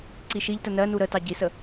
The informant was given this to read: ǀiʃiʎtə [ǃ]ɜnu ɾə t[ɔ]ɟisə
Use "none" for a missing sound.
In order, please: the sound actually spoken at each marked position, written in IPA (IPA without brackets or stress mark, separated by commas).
n, ɑ